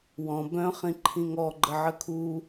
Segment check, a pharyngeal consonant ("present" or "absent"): present